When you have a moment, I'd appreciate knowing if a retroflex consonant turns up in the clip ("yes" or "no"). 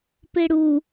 yes